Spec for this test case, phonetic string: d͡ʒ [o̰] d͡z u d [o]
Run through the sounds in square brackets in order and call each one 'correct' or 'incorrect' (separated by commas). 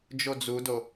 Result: incorrect, correct